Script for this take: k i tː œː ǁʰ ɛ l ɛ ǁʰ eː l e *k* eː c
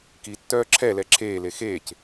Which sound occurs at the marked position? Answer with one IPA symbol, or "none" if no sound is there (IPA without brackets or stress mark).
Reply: x